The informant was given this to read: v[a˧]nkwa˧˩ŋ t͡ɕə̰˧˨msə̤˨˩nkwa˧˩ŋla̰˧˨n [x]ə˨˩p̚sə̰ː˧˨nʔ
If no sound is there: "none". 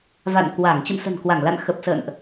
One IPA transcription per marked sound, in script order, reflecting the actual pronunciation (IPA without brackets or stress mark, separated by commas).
a̰˧˨, x